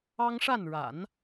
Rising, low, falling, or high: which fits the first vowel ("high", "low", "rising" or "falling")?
high